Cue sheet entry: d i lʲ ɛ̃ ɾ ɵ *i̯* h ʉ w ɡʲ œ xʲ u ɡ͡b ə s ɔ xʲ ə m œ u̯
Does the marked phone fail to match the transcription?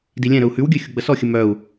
yes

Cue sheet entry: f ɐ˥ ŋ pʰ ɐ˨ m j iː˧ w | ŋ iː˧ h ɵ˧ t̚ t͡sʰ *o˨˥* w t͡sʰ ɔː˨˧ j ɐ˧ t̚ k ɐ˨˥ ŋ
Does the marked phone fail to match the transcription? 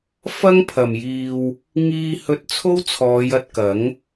yes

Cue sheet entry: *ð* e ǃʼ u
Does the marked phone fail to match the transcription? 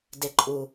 yes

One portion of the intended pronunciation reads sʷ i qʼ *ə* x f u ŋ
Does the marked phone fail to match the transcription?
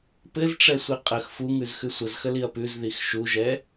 no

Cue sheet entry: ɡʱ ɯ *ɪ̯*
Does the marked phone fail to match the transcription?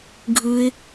no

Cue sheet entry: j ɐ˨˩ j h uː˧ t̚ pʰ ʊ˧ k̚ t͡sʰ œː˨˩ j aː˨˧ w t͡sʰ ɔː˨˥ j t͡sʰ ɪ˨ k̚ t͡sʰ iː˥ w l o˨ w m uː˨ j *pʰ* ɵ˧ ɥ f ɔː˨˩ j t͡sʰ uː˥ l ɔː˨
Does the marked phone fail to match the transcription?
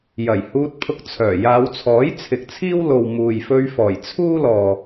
yes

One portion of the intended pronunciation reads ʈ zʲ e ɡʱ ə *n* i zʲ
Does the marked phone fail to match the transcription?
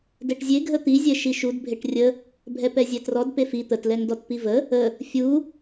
yes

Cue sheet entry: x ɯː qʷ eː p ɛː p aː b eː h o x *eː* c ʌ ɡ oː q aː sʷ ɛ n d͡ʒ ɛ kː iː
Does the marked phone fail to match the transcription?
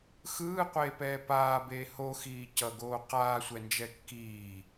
yes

